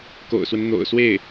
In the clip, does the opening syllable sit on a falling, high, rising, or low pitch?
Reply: low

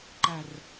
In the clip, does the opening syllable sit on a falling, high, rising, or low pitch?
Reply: low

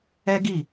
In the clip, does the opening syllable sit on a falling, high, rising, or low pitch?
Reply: high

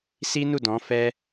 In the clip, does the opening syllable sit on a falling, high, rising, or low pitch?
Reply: high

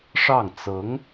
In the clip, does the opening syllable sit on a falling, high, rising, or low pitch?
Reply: falling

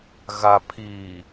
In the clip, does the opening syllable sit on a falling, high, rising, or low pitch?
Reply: low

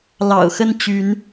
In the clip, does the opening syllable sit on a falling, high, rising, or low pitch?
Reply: low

